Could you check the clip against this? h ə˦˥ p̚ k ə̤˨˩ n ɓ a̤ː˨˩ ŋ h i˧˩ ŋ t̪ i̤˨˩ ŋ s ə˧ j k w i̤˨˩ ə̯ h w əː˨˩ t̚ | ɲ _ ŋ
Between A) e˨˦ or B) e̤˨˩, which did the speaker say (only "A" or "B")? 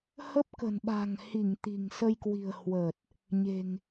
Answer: B